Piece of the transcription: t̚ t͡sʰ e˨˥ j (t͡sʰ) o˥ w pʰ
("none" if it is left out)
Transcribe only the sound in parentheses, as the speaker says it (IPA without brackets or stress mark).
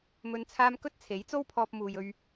t͡s